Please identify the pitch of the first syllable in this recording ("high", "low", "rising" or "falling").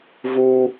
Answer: high